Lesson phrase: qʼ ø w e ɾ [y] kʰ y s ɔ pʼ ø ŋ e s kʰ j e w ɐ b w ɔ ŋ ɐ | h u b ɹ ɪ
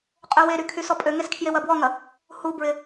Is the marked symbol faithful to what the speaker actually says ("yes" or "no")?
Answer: yes